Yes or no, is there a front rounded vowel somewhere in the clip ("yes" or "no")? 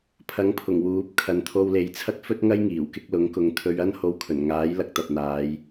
no